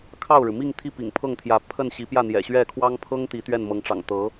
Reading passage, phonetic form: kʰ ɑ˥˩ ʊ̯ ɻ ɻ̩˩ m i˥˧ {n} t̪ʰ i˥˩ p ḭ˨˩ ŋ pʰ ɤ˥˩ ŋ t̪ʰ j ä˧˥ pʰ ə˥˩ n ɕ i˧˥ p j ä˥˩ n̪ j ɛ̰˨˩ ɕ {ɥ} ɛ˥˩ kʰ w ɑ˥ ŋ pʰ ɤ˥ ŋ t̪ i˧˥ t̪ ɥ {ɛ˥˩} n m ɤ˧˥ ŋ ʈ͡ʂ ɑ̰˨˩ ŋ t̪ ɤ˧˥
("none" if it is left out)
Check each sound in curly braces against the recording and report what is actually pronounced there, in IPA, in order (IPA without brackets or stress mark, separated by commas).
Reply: ŋ, ɥ, ɛ˥˩